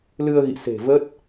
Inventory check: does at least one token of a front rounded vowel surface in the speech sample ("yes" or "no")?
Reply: no